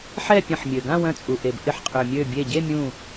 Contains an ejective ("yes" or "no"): yes